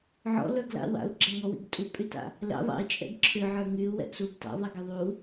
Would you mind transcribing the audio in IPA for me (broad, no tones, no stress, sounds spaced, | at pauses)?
ʕ ɔ̰ l ə˞ ɡ l a̰ w a̰ u̯ ɡ͡ǁ æ ŋ ɔ w ḭ ɡ tʼ u pʼ y t a̰ | l ɛ̰ ðˤ ɛ̰ i̯ t͡ʃʼ ɛ̰ ɡ ǁʰ ʏ ʕ ə˞ ŋ y u̯ w ɛ̰ ʔ s uː ɡ t a̰ ðˤ i ɡ ɛ ðˤ u